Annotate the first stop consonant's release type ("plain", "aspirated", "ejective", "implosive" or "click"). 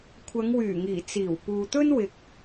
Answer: aspirated